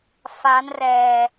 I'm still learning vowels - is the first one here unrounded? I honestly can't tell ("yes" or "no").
yes